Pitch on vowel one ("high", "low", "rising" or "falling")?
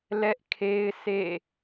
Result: high